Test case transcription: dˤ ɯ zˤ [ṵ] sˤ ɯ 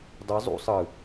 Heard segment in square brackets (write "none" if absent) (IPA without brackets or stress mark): ṵ